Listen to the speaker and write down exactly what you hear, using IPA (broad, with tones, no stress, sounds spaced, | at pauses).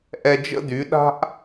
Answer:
ʔ ɛ˧ d͡ʒ ə̰˦ d y˨˦ ɗ a̤˦ ʔ